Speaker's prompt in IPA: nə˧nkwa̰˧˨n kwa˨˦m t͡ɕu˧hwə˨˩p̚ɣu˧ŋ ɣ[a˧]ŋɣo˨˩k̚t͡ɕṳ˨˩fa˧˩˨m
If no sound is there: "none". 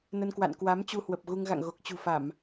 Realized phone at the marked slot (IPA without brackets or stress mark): a̰˧˨